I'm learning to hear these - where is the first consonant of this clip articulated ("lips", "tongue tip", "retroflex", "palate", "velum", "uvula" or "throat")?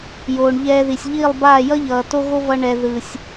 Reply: palate